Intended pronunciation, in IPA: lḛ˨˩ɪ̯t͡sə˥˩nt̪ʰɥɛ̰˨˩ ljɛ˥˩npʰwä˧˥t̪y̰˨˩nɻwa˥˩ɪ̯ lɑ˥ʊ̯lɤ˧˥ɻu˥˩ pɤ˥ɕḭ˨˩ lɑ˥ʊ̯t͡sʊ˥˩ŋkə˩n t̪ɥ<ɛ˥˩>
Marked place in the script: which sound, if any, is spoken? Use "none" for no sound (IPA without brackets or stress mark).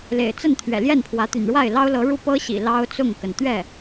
ɛ˥˩